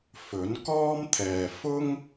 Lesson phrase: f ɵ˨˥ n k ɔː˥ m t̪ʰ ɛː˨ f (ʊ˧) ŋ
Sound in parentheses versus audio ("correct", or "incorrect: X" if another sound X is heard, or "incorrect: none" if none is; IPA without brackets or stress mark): incorrect: ʊ˥